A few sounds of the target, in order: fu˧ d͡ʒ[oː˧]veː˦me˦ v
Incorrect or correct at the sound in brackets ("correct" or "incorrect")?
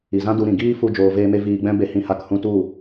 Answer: correct